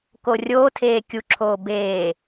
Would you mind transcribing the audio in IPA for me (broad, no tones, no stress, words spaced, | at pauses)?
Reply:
korʲoːtʰeː kʲuǁʰoː beː